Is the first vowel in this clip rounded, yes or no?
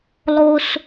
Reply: yes